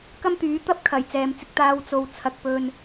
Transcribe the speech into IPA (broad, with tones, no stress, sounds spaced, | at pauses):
k ɐ˥ m t̪ yː˨˥ t̪ ɐ˥ p̚ kʰ ɐ˨˩ j t͡s ɛː˨ m t͡s ɪ˧ k̚ t̪ aː˧ w t͡s o˨ w t͡sʰ ɐ˨ k̚ p ɵ˧ n